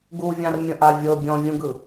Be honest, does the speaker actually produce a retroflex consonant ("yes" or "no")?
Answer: no